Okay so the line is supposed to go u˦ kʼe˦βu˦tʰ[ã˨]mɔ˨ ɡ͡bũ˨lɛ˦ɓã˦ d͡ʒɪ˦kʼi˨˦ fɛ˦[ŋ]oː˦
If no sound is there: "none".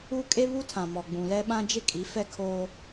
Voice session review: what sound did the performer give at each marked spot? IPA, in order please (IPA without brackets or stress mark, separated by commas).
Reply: ã˨, kʰ